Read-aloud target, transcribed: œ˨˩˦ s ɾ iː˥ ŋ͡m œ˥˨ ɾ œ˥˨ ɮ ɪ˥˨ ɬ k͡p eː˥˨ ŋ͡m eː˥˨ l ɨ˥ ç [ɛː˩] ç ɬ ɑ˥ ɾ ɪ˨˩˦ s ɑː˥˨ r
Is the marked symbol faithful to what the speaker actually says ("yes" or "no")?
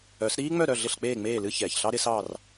yes